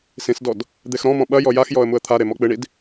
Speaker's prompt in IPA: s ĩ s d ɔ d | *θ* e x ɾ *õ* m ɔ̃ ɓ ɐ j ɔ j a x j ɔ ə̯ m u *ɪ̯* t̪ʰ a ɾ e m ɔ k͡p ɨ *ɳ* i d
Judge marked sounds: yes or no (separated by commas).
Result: no, no, no, yes